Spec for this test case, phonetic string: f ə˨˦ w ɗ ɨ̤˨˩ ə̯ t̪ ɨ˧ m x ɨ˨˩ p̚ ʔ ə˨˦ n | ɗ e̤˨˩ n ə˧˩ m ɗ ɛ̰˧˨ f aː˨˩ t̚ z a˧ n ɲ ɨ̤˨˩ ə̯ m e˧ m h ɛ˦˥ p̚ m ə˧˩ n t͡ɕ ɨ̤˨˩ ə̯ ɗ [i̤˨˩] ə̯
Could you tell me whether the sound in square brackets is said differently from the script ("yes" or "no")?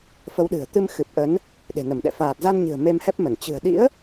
yes